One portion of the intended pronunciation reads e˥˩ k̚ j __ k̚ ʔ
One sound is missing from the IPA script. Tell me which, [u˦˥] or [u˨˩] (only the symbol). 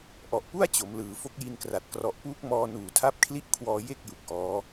u˨˩